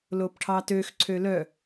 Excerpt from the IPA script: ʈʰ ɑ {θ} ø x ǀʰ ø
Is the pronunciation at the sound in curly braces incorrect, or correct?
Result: incorrect